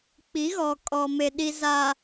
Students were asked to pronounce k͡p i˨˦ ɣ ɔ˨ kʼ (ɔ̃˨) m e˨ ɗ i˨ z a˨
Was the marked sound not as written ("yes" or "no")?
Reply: yes